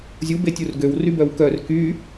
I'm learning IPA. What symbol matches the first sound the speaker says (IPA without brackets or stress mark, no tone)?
zʲ